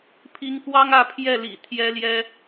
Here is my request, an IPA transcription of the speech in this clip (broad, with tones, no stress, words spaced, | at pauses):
pʰi˨˦ŋkwɑ˦ŋ ä˥˨pʰjɛ˥˨ lḭ˨˩ t̪ʰjɛ˦ljɛ˦